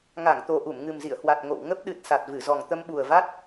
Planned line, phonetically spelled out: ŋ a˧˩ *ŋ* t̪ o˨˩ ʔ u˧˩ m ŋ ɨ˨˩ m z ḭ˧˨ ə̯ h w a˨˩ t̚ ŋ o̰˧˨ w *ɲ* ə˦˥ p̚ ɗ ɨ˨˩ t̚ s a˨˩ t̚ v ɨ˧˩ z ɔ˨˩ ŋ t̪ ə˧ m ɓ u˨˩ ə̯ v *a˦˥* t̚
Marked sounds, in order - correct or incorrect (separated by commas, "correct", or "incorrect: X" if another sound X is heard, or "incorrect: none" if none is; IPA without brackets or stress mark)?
correct, incorrect: ŋ, correct